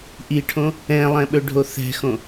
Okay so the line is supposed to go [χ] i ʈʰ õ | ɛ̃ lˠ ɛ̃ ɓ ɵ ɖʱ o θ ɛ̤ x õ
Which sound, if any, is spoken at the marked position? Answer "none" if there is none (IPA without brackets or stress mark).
ʔ